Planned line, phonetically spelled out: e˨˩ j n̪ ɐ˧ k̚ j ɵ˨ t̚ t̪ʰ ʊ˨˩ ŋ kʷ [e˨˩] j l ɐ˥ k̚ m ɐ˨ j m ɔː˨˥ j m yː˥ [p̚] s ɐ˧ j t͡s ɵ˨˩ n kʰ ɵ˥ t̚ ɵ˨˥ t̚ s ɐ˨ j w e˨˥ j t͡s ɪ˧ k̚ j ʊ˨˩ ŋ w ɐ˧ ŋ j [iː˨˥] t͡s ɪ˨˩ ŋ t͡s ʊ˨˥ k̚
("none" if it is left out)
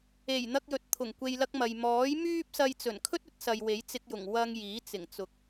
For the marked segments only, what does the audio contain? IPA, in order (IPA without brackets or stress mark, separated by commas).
e˧, p̚, iː˨˥